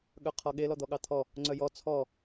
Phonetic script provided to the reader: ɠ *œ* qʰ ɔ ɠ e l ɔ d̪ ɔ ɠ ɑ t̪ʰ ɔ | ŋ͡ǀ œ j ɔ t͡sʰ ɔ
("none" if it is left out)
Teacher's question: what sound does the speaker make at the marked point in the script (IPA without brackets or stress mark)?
œ